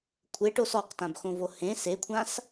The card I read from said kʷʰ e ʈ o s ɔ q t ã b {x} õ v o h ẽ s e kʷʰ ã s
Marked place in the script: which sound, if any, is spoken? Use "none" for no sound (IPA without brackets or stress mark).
x